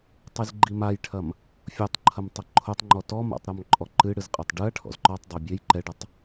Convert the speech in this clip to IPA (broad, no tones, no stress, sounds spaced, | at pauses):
tˤ i z ɡ͡ǃ i m a j ʈʰ ɐ m | fʲ o tˤ ǃʰ ɐ m tˤ ɨ ǃʰ o tˤ ŋ͡ǃ ɔ t ɔ m a̰ tˤ ɾ ɔ m ǃʼ ɔ ǃ ɨ ɽ ɨ z qʼ ɐ tˤ ɖ ɨ ɐ̯ ʈʰ ɔ̰ z ǃ ɔ tˤ dˤ ɐ bʲ e j ǃ ɛ ɖ ɐ tˤ